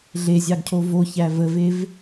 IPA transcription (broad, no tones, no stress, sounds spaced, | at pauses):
ɮ e zʲ ɑ ɡ cʰ o v o ç æ v ə v e v